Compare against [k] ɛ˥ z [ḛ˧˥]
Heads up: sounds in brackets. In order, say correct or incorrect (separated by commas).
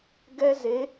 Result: incorrect, incorrect